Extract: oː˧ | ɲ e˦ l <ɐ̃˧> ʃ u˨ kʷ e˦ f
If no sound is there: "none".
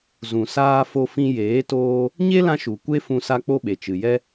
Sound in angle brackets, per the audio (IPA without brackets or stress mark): ã˧